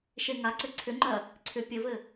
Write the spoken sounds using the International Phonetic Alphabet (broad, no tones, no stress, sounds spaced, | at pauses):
ʃ e ŋ a ǀ ɘ ǀʰ ʏ ŋ͡ǃ ɜ | ǀʰ ʏ pʲ ɘ v ɘ